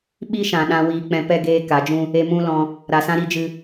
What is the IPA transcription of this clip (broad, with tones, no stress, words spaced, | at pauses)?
ɓi˦ʃã˨ɗã˧ wiː˧k͡pɛ̃˧pɛ˦ ɡeː˦ka˨˦d͡ʒũ˦ | e˧mũ˦lɔ̃˧ | ɾa˨sã˦ɾi˦d͡ʒɨ˧